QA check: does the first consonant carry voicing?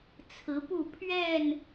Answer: no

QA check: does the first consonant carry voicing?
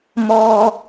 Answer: yes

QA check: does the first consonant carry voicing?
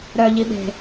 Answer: yes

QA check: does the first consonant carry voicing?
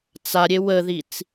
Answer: no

